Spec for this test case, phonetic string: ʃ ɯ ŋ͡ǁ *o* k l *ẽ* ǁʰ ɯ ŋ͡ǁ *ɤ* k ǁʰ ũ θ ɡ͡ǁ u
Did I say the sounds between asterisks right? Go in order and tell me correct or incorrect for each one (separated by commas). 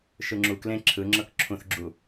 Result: incorrect, correct, correct